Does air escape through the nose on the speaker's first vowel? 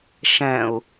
yes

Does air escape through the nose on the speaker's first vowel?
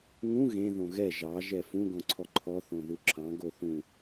yes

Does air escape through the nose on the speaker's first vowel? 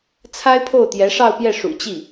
no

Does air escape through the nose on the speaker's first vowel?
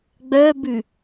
no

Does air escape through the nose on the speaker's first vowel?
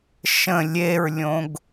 yes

